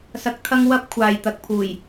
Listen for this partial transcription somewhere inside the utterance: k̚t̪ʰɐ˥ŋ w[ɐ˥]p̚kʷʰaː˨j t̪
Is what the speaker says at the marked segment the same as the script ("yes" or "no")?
yes